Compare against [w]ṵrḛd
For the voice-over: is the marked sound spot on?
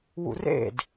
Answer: yes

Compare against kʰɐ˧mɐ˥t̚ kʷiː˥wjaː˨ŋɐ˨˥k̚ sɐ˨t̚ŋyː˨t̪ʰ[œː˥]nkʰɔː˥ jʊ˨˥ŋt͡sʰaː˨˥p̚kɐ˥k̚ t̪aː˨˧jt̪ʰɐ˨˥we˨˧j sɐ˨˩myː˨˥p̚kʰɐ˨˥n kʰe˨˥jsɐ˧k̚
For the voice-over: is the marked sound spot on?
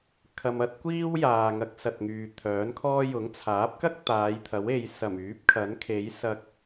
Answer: no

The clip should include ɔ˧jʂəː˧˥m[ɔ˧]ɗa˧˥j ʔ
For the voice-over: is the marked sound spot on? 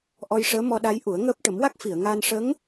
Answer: yes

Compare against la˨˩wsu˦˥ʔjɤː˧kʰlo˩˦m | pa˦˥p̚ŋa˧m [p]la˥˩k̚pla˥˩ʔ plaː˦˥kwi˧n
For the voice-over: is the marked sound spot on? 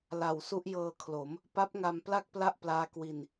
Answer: yes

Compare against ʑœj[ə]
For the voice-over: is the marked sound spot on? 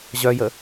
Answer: yes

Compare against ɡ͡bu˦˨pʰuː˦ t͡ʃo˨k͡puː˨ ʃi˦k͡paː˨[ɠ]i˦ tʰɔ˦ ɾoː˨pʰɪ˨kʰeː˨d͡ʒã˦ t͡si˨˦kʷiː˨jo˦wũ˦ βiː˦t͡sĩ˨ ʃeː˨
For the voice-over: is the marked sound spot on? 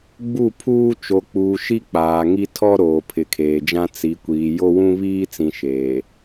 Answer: no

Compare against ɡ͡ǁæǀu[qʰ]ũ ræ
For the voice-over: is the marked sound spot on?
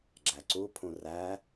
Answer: no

